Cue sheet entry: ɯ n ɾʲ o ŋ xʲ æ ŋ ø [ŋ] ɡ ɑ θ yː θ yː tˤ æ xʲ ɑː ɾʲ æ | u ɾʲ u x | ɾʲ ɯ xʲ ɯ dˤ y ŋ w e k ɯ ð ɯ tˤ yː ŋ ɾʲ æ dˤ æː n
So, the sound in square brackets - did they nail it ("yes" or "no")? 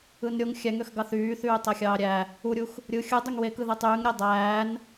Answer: no